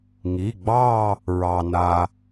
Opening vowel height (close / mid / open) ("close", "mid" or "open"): close